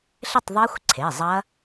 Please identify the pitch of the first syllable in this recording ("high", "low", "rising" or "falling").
falling